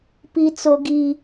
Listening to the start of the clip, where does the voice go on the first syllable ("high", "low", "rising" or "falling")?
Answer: high